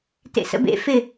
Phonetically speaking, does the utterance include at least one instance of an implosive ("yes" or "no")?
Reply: no